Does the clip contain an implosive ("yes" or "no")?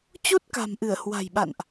yes